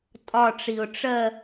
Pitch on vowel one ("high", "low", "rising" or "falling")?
falling